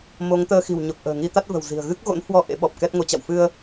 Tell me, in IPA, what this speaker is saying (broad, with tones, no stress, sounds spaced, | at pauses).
m o˨˦ ŋ t̪ əː˧ x i̤˨˩ w ɲ o˨˩ k̚ ʔ ə̤ː˨˩ ŋ i˧ t̪ a˦˥ t̚ v ə̤˨˩ w z i̤˨˩ ə̯ ɣ ɨ˦˥ k̚ ɣ o̰˧˥ n h w ɔ˧ ʔ ḛ˧˥ ɓ ɔ˨˩ p̚ k ɛ˦˥ t̚ ŋ o˨˦ t͡ɕ a̰˧˨ w f ɨ˧ ə̯